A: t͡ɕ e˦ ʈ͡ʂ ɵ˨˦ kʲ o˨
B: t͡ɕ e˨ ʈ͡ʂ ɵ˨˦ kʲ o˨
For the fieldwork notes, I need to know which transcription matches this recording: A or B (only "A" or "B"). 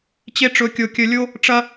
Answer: A